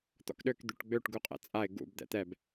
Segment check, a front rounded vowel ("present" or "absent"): present